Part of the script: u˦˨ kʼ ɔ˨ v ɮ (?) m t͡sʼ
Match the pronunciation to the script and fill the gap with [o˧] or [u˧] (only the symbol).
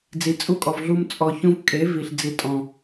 u˧